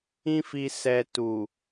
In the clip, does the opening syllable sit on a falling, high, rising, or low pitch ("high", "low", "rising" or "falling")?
high